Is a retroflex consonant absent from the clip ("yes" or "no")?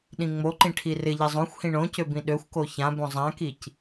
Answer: no